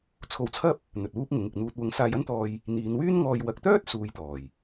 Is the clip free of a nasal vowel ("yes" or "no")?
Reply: yes